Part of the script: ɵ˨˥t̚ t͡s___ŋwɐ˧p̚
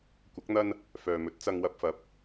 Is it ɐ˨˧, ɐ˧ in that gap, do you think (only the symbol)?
ɐ˧